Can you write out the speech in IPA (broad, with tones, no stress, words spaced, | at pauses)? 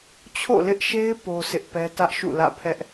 t͡ɕʰo̰˦˨lɪ˦ʔʃe˦ɪ̯ po˦sʰɪ˦ʔpɛ˦ tä˦ʔʃṵ˦˨lä̰˦˨ pʰɛ˦ʔ